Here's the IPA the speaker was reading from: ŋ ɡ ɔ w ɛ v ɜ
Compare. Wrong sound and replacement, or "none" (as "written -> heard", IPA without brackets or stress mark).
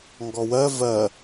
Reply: ɛ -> ɜ